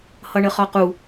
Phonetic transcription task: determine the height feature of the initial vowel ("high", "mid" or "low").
mid